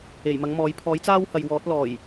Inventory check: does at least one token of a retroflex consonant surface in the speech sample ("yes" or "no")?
no